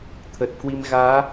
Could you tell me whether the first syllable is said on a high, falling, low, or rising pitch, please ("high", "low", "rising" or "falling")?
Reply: low